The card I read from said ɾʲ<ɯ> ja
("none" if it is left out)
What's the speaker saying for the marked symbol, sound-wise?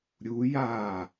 u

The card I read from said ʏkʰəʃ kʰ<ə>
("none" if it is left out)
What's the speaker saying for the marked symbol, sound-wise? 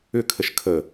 ə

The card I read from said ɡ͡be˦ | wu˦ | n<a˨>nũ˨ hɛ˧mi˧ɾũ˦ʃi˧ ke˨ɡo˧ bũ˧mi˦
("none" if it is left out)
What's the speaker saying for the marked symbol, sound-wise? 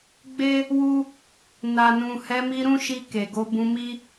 a˨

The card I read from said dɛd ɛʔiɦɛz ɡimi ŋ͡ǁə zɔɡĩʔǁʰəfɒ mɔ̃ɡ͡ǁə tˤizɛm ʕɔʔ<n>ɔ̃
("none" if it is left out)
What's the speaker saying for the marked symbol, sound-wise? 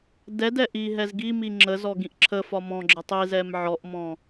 m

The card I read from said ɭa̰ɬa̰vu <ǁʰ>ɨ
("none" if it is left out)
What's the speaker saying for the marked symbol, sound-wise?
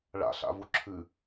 ǁʰ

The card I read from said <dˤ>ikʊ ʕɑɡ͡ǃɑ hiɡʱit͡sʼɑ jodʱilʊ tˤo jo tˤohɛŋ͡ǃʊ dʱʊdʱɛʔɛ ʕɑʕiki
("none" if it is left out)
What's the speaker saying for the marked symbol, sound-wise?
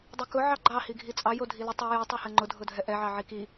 dˤ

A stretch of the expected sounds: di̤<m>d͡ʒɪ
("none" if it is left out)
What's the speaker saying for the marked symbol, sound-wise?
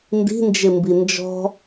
n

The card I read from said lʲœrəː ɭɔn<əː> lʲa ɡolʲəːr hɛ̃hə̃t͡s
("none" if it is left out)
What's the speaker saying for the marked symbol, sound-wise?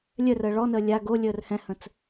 əː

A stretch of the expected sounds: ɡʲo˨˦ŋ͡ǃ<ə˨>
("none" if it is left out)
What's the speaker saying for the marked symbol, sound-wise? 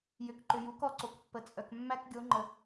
ə˨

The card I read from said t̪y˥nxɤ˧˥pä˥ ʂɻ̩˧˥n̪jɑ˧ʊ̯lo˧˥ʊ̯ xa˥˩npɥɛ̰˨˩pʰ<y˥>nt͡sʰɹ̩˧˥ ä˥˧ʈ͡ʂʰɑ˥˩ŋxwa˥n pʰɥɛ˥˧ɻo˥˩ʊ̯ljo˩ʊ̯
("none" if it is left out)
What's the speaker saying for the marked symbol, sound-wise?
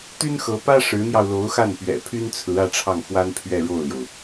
y˥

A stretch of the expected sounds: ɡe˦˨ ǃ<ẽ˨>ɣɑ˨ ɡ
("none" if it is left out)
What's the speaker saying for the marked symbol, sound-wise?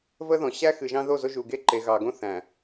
e˨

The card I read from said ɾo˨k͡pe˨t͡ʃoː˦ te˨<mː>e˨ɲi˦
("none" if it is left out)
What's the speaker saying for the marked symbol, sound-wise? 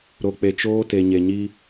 ɲ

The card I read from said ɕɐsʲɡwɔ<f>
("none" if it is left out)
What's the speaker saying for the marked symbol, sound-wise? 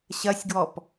p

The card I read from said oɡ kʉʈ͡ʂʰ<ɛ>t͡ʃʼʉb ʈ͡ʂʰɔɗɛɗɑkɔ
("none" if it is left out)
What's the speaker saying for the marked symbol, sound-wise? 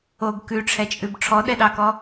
ɛ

